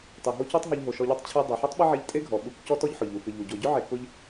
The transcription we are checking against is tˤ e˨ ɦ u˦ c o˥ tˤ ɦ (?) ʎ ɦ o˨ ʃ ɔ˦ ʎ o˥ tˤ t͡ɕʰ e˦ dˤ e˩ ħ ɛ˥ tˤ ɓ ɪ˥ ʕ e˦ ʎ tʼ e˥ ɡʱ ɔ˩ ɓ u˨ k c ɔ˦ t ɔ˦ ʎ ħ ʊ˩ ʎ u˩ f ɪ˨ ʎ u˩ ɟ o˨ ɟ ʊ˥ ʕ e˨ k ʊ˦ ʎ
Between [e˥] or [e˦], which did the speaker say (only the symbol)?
e˦